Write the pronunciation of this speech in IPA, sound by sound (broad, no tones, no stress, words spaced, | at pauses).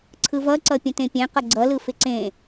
ǀʰɯvʌǀʌ pʲə̃tẽpʲɛ̃qʌ ɡ͡ǀʌlɯ fɪǀẽ